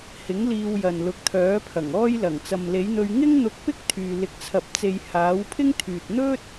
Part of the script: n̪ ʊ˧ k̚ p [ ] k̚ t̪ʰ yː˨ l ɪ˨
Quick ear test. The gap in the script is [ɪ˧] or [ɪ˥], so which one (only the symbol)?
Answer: ɪ˥